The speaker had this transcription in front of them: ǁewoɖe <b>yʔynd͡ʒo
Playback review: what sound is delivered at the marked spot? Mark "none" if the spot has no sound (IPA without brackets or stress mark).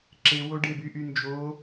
b